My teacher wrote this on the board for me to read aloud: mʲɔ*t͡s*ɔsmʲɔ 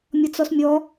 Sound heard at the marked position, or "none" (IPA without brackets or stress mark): t͡s